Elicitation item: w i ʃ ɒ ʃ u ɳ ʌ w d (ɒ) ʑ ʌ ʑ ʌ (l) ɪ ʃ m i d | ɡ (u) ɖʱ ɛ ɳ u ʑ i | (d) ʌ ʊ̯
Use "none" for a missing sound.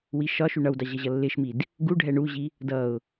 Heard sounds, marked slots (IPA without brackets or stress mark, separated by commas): ɑ, lː, u, d